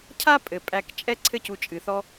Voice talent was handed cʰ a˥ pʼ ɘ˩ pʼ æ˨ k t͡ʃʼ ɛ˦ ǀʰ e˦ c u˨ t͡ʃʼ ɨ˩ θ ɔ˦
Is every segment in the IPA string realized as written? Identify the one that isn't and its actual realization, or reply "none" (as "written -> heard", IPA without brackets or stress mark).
e˦ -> ɘ˦